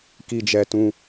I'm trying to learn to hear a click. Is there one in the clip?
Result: no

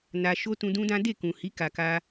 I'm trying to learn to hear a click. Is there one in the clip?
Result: no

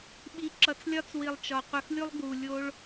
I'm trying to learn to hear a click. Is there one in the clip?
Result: yes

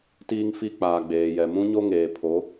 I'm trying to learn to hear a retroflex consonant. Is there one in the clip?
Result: no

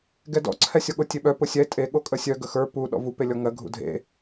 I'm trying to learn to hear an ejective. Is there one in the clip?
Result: yes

